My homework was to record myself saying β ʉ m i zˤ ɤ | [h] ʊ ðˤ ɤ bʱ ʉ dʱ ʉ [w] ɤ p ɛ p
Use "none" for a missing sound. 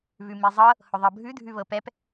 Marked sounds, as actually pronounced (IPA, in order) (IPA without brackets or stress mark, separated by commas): h, β